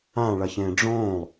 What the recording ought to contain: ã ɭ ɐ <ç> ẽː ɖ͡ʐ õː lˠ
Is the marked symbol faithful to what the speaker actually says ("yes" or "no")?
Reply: yes